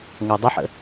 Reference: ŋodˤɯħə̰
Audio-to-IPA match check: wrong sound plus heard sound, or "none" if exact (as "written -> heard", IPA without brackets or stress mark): ɯ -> ə